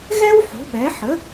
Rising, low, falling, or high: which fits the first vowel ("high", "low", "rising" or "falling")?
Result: high